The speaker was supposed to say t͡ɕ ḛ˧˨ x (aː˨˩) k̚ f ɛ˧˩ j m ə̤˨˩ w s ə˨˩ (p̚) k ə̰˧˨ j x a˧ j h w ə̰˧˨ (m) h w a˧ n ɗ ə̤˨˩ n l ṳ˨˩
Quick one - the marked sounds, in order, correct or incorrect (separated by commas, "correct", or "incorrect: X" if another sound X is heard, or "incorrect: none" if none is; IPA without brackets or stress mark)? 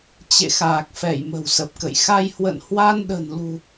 correct, correct, incorrect: n